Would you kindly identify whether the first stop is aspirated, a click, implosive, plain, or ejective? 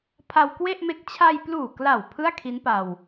aspirated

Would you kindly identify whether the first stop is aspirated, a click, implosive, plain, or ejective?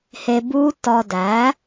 plain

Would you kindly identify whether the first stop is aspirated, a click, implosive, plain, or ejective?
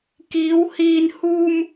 plain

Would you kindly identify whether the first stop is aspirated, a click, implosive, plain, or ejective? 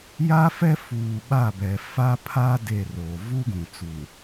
implosive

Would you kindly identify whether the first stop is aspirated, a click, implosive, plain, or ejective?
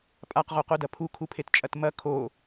ejective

